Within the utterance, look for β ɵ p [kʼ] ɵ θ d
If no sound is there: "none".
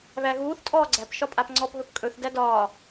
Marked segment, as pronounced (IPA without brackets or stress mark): kʼ